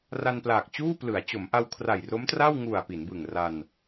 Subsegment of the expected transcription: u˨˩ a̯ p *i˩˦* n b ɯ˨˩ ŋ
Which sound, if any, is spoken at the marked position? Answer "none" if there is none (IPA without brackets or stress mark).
i˩˦